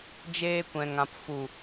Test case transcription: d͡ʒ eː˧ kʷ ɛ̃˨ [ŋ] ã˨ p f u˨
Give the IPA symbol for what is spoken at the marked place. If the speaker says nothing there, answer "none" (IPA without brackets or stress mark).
ŋ